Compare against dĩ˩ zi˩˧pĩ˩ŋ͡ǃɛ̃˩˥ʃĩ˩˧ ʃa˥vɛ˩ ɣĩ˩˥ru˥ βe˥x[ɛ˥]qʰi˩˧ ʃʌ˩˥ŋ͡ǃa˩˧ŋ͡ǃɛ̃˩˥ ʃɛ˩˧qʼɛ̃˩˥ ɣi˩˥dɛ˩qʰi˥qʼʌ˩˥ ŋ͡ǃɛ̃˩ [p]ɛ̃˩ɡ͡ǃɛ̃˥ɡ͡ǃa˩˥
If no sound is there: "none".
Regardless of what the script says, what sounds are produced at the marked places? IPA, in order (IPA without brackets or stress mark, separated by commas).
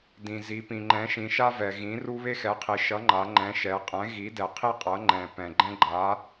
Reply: ɛ˩˥, p